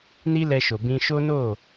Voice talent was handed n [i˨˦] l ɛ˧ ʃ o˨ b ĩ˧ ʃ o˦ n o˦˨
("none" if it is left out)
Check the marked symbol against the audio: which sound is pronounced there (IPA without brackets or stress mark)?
i˧